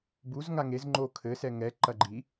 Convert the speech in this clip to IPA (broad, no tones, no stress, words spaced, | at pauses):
buzŋa ŋez ŋ͡ǃo kʰɘsɛ ŋɛǃɐ ɡ͡ǃi